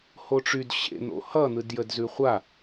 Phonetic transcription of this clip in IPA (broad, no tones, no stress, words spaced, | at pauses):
hoʈ͡ʂyd ɕḛn̪o̰ hʌn̪ɯd jədzʉχʷa